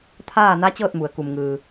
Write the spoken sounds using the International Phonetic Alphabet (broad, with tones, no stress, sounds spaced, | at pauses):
t̪ʰ aː˥˨ n a˧˥ t͡ɕ ɤː˥˨ t̚ m u˩ ə̯ k u˩ m ŋ ɯː˩